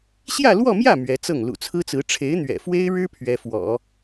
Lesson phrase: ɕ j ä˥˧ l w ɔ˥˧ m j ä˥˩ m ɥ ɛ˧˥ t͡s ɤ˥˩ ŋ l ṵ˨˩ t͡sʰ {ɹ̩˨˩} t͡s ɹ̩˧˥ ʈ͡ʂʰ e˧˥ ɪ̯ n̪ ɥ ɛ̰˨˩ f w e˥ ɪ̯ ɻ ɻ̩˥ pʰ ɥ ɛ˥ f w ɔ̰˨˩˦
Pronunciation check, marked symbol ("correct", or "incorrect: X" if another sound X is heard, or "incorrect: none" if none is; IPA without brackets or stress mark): incorrect: ɹ̩˥